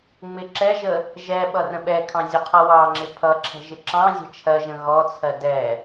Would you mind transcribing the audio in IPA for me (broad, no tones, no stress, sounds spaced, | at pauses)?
ŋ͡m ɪ ǁ ɛ ʒ ə | ʒ ɛ ɓ ʌ r ə̃ ɓ ɛ kʰ ɑ̃ zʲ ʊ qʰ ʌ w ɑ ŋ͡ǁ ɪ pʰ ʌ ǁʰ ɛ̤ ʒ ɪ ǁ ɑ̃ zʲ ɛ̤ t͡ʃʰ ɜ ʒ ə̃ ɣ ɔ t͡sʰ ɜ d ɛ